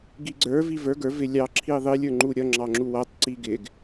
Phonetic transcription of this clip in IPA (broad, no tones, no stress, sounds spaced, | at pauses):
ɡ i ɡ͡ǀ ə˞ v i v ə˞ ɡ ə˞ v ɪ lʲ ɑ ǁʰ i ðˤ i lʲ ə˞ ŋ͡ǃ u ɾʲ ʌ ŋ͡ǁ ɑ ŋ͡ǁ u w ʌ tˤ ǀ i ɡ ɪ ɡ